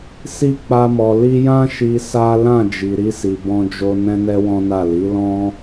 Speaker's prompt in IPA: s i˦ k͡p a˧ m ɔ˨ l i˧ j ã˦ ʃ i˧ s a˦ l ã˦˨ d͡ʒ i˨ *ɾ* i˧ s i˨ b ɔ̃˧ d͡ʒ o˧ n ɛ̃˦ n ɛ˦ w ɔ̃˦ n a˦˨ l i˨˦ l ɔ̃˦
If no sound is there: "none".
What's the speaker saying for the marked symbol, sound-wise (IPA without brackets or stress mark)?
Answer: ɾ